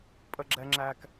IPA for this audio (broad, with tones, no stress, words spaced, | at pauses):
pʼə˨ɡ͡ǁɛ˨ŋ͡ǁæ˨k